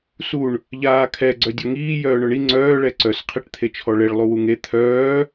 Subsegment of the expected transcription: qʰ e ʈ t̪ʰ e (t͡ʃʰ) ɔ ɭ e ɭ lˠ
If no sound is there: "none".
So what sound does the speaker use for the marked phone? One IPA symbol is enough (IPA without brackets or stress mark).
t͡ʃʰ